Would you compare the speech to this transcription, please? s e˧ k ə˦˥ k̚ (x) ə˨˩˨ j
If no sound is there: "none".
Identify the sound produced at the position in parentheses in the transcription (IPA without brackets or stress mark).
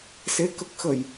x